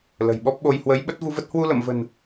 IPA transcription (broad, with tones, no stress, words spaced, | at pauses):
lə̤˨˩jɓɔ˦˥p̚ɓo˧j hwə˨˦jɓə˦˥t̚vu˧və˦˥t̚ hwu˧lə̰˧˨mvə̤˨˩n